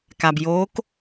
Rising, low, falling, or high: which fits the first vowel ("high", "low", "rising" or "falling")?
low